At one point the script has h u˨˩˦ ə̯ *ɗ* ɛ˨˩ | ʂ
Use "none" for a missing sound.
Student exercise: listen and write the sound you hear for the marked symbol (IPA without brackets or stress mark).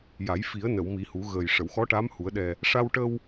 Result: ɗ